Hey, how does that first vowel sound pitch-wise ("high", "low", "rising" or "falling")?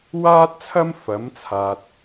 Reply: high